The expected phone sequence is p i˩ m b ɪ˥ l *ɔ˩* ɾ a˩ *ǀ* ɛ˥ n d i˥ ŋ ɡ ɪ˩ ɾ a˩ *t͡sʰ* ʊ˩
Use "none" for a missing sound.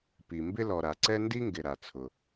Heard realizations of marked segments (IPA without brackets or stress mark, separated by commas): ɔ˩, ǀ, t͡sʰ